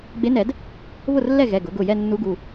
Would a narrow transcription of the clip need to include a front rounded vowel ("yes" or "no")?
no